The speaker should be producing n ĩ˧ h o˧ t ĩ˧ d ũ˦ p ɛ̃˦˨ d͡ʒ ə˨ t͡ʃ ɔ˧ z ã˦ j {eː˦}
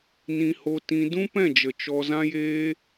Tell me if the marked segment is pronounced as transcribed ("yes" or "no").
yes